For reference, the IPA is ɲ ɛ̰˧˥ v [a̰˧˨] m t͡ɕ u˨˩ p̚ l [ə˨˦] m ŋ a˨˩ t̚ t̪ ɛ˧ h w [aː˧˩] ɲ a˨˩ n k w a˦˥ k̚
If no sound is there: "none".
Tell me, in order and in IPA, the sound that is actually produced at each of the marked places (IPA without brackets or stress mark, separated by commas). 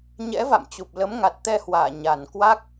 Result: a̰˧˨, ə˨˦, aː˧˩